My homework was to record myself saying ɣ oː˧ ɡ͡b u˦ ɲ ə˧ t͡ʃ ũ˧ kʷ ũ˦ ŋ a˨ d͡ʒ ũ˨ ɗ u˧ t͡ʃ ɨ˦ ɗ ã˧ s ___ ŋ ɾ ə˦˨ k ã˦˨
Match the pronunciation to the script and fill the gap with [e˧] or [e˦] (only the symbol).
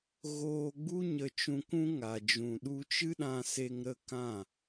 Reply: e˧